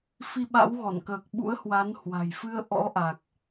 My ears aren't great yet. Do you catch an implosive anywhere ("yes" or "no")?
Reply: yes